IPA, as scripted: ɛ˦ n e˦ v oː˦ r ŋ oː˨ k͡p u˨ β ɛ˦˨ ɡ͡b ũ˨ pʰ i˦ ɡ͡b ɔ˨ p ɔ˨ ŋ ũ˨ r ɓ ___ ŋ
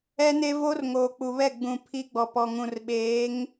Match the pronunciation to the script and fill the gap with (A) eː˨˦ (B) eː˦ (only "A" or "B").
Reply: A